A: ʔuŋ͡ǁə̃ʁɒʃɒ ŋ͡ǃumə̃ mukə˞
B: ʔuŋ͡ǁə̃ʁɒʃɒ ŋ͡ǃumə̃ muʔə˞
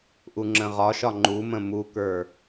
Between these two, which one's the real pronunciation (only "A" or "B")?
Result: A